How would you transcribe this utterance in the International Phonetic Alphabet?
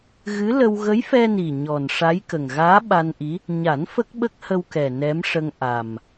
ɣ ɨ˧˥ l ə˧ w ɣ ə˧˥ j f ɛ˧ n i˨˩ ɲ ɔ˨˩ n ʂ a˧˥ j k ə˨˩ ŋ ɣ aː˧˥ ɓ a˧ n ʔ i˧˥ | ɲ a˨˩˦ n f ə˦˥ k̚ ɓ ə˦˥ k̚ h ə˧ w k ɛ˨˩ n ɛ˧˥ m ʂ ə˧ ŋ ʔ a˨˩ m

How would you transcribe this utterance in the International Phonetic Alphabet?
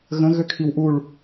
ɣ ə̃ ɣ ø kʰ i w ʔ u ɭ

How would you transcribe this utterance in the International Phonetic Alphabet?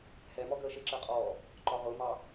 h ɛ m ɔ ɡ əː ʃ ɪ ǁ ɜ qʼ ɔː | ǃ ɒ ʁ ʊ m ɑ

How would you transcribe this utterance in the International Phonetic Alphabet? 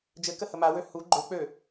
d͡ʒ ɘ k ə h ə m a w ø h u ɡ͡ǃ ø k͡p ø

